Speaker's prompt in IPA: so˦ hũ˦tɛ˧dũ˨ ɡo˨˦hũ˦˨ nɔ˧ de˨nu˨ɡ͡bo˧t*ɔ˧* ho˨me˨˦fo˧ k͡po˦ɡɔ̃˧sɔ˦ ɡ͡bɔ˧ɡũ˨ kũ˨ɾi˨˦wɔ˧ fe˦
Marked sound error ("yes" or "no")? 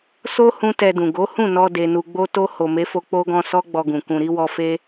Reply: yes